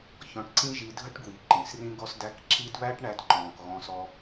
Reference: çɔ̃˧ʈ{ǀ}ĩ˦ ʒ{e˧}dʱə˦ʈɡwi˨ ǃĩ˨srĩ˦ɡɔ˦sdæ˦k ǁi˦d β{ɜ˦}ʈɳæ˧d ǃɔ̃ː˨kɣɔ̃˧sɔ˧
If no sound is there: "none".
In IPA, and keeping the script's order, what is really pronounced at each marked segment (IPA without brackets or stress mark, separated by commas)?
ǀ, i˧, æ˦